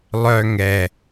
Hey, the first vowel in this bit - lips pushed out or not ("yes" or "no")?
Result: yes